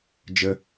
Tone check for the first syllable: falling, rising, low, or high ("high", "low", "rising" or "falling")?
high